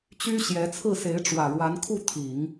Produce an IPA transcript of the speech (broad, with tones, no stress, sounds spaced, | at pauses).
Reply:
t͡ɕ y˥ ɕ j ɛ˧˥ t͡sʰ ɹ̩˥˩ s e˧˥ ɪ̯ ʈ͡ʂ w ä˨˩ ɻ w a˧˥ n kʰ u˥˩ t̪ʰ i˨˩˦ ŋ